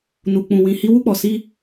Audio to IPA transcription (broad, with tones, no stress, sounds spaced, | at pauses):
n u˧ k͡p ũ˧ w ĩ˧ h i˧ w u˧ k͡p ɔ˨ s i˧